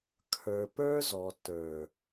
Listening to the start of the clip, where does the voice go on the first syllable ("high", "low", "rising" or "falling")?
low